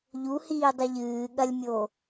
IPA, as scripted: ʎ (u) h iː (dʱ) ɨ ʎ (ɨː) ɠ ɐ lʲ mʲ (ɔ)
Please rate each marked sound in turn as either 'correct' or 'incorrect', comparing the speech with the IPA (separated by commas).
correct, incorrect, correct, incorrect